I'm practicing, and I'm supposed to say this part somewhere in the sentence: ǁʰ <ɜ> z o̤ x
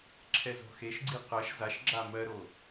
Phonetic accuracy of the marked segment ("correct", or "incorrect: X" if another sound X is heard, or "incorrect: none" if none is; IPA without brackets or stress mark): incorrect: ɛ